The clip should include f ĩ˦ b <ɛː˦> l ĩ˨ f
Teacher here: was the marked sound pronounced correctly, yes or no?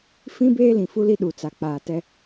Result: no